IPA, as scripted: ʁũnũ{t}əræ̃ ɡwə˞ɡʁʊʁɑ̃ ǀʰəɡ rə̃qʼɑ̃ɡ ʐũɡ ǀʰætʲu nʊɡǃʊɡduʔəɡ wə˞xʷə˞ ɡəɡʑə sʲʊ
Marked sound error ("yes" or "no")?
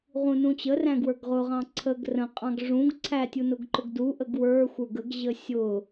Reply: yes